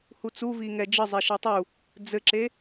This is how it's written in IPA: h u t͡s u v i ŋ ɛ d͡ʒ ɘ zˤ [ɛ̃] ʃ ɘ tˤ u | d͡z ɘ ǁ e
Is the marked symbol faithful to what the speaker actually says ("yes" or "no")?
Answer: no